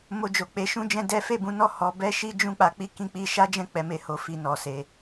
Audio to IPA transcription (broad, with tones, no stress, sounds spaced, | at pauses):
m o˧ d͡ʒ o˨ k͡p e˧ ʃ ũ˦ d͡ʒ ɛ̃˦ d ɛ˦ f e˦˨ b ũ˨˦ n ɔ˦˨ h ɔ˧ b ɛ˦ ʃ i˦ d͡ʒ ũ˦ k͡p a˧ k͡p i˦ k ĩ˦ k͡p i˦ ʃ a˦ d͡ʒ ɛ̃˦˨ k͡p ɛ˨˦ m e˧ h o˧ f i˧ n ɔ˨ s e˧